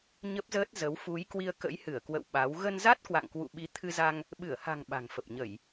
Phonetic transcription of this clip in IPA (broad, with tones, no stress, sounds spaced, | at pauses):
ɲ ə˦˥ p̚ z əː˦˥ t̚ z ə˨˦ w f u˨˦ j k w i˧ ə̯ k ə̰˧˥ j h ɨ˧˩ ə̯ k w ə̰˧˨ w ɓ a˨˦ w ɣ ə˧ n z a˦˥ t̚ k w a̰˧˨ ŋ k w ṵ˧˨ ɓ i˨˦ t̪ʰ ɨ˧ z a˧ ŋ | ɓ ɨ˧˩ ə̯ h a̤˨˩ ŋ ɓ a̤˨˩ ŋ f ə˨˩ p̚ ɲ ə˧˩˨ j